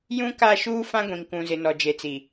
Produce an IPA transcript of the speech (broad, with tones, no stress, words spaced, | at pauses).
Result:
jũ˦ka˦˨ʃuː˦ fã˦ɡʷĩ˨ŋkũ˨zɪ˨ nɔ˨d͡ʒe˨t͡si˨